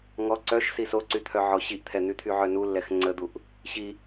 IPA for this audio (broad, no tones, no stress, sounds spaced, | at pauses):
ŋ ɔ ǀ œ ʃ s i s o ǀ y t̪ʰ œ ʕ ɔ ɕ i ʔ t̪ʰ ɛ n̪ y t̪ʰ y ʕ œ n u lː ɛ x ŋ͡ǀ ə d̪ u ʔ | ɕ i